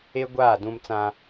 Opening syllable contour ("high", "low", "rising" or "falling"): high